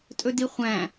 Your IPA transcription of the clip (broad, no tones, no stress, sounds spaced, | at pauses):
tʼ ɵ d i χʷ æ̃